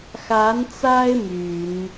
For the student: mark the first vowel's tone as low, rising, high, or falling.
rising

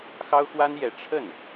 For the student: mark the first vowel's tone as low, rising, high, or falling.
high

